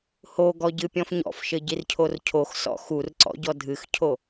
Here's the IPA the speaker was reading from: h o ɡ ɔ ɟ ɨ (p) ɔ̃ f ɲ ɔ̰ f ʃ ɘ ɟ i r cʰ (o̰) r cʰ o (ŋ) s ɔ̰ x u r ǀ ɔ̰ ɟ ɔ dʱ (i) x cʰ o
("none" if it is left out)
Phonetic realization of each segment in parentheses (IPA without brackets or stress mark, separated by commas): pʲ, o, x, ɨ